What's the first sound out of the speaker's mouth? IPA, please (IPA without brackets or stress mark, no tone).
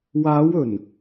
w